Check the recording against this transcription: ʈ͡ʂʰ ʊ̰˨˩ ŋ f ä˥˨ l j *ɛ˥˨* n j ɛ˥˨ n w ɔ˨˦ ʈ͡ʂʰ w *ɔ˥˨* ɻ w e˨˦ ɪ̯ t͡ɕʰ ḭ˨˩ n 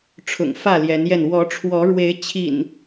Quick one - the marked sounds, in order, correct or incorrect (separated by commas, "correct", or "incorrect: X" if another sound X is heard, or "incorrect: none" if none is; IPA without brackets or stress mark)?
incorrect: ɛ˨˦, incorrect: ɔ˨˦